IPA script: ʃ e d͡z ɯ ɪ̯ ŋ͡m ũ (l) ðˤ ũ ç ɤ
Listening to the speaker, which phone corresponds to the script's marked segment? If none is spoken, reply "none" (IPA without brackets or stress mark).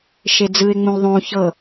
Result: l